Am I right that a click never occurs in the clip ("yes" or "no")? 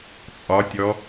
yes